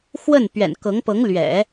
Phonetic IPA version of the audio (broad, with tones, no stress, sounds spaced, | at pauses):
x w ə˥˩ n p ɥ ɛ̰˨˩ n k ɤ˧˥ ŋ p ɤ˧˥ ŋ l ɥ ɛ̰˨˩˦